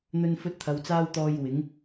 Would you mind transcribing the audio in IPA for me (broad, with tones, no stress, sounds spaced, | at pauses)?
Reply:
n̪ ɵ˧ n f ɵ˧ t̚ t̪ʰ ɐ˨˧ w t͡s aː˥ w t̪ ɔː˧ j w ɪ˨˥ ŋ